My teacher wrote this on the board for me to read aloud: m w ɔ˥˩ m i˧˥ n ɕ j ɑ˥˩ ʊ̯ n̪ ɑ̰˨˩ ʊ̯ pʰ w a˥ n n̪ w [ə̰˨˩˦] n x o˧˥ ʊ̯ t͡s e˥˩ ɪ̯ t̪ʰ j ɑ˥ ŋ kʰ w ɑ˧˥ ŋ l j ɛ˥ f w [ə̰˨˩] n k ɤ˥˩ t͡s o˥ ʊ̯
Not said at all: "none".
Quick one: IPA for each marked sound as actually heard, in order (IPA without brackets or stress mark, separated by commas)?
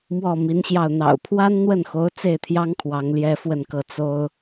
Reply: ə˥˩, ə˥˧